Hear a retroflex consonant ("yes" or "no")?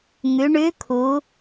yes